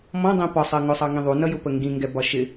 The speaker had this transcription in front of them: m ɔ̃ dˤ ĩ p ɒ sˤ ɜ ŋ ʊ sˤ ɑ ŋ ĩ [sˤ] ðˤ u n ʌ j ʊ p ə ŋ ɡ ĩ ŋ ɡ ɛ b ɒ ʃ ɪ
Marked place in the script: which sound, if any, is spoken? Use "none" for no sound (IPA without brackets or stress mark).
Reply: none